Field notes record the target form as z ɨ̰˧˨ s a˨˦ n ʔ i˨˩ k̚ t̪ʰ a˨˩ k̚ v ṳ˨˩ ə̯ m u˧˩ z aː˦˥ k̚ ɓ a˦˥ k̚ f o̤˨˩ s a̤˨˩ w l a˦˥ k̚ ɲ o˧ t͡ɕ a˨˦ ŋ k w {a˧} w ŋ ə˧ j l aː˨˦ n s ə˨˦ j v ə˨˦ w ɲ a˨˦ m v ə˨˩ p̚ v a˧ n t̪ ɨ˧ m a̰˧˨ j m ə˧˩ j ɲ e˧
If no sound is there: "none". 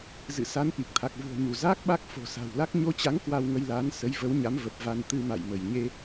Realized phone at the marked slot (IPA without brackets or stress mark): a˧